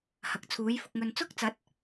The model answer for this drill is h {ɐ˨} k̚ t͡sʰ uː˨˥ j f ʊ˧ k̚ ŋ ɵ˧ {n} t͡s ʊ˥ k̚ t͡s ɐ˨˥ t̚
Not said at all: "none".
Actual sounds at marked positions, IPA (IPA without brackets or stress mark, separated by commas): ɐ˨, n